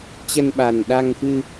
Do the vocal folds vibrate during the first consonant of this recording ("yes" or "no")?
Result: no